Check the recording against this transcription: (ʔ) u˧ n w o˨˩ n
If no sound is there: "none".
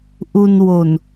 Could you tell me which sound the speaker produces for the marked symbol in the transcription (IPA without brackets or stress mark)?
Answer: ʔ